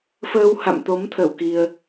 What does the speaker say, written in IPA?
f əː˧ w h a̰˧˨ m t̪ o˨˦ m t̪ʰ ə˧˩ w k i˧ ə̯

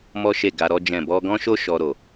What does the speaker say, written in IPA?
m ɔ˦ ʃ e˦˨ ɡ a˧ ɾ ɔ˦ d͡ʒ ɛ̃˦˨ b ɔ˧ ɡ ɔ̃˦ ʃ o˦ ʃ ɔ˧ ɾ o˨

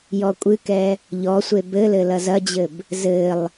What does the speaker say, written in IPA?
j ɔ kʷʼ ɨ k ɛ | ʎ ɔ sʷ e b ɘ l ɘ l ɐ z ɐ d͡ʑ ɘ b | z ɘ lˠ

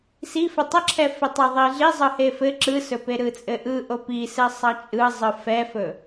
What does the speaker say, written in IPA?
s i f ɘ tˤ ə ǁʰ ɛ f e tˤ ɛ ðˤ i ɮ i zˤ ɯ h e f ɘ ǁ ɯ s ɵ p e ɾ ɯ t͡sʼ ɘ ʔ ɯ ʔ o p i s ɘ sˤ ɑ t͡ʃʼ ɯ zˤ ɯ f ɛ f ɵ

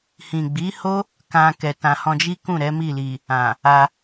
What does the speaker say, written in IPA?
h ĩ˨ ɡ͡b i˨˦ h o˦ | k ã˧ k ɛ˨ t ã˨ h ɔ̃˧ d͡ʒ i˦ k ũ˦˨ ɾ ɛ˨˦ m i˦˨ l i˨ | ã˨ | a˧

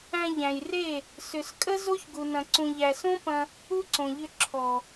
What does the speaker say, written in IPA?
æ̃˧ ʎ æ̃˨ j r e˦˨ | s ʏ˨ s kʼ ə˦ z o˦ ç ɡ u˨ n ɐ̃˨ ǀ ũ˨ ʎ æ˨ s õ˦ p ɐ̃˧ | u˦ ǀ õ˨ ʎ ʏ˧ ǁʰ ɔ˨

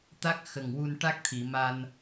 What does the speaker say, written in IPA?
t̪ a˦˥ k̚ x ə˨˩ ŋ w u˧ n ʈ a˦˥ k̚ t̪ʰ i˨˩˨ m a˧ n

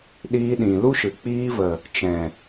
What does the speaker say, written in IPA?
ɗ iː˧ ɗ ĩ˨ l u˦ ʃ ɨ˨ k͡p iː˧ v ə˨ | t͡ʃ ɛ̃˨

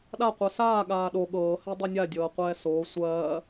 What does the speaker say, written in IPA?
ɗ a qʷ ɛ s aː ɠ aː ɗ o ɠ ɤː h ɛ dˤ y nʲ a dʲ ɤː qʷ ɛː s oː sʷ ɜː

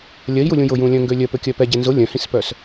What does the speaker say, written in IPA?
lʲ ɜ i̯ j u lʲ ũ j ʊ j ũ lʲ œ̃ ŋ ɡ ø lʲ œ p ø kʲ œ p ɛ ɟ ɛ n z ʊ lʲ œ̃ h ĩ s p œ s

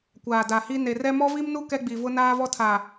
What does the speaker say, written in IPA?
kʷ aː˨ d a˨ h i˦ n e˨ r ɛ˦ m ɔ˦ v i˦ m n u˦ k ɛ˦ ɡ͡b i˨ v ʊ˦ n aː˦ v ɔ˦ tʰ a˨

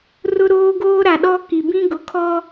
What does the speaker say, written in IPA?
r ʊ˦ ɾ oː˦ ɡ oː˦ ɾ a˨ ɗ ɔ˦ k i˨ b ĩ˦ ɡ ʊ˨ kʰ ɔ˦

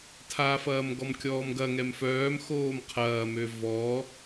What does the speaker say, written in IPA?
tʰ a f ɐː m ɡ ɔ m kʲ ɔː m ɡ ɐ ŋ ɛ m f œː m x oː m qʰ ɐː m ø v ɔ

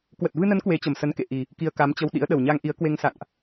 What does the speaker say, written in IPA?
k w ə˨˩ t̚ v ɨ˧ n ə˨˦ n k w e˨˦ t͡ɕ ə˨˩ m s ə˨˦ n k ḛ˧˨ ʔ i˨˩ | k i˧ ə̯ k a˨˦ m t͡ɕ ə˧ w ɗ ḭ˧˥ ə̯ ɗ ə˨˩ w ɲ a˧ ŋ ʔ i˨˦ ə̯ k w e˧ ŋ s a̰˧˨ n ʔ

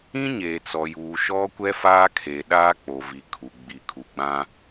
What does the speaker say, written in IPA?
ĩ˦ ɲ eː˨ t͡s ɔ˨ j uː˨ ʃ ɔ˦ kʷ ɛ˦ f aː˦ kʰ e˨ ɗ aː˦ k͡p o˨ v i˨ kʰ u˨ ɡ͡b i˨ kʰ u˨ ɡ͡b ã˦

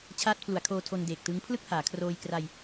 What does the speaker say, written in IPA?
t͡ɕʰ aː˦˥ t̚ pʰ l u˩˦ a̯ kʰ oː˧ tʰ o˧ n d eː˨˩ k̚ t ɯ˦˥ ŋ pʰ l ɯ˥˩ k̚ h aː˩˦ kʰ r oː˧ j k r a˧ j

